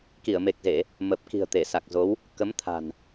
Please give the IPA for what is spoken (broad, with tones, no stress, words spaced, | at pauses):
ki˧˩ə̯me˨˩k̚ze˧˩˨ | mə˨˩p̚ki̤˨˩ə̯ t̪e˧˩sa˨˩k̚zo˨˦w | kə˨˦mt̪ʰa̤˨˩n